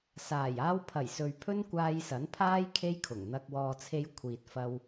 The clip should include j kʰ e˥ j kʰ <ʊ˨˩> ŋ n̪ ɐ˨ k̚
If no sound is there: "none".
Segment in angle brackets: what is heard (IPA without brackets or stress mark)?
ʊ˨˩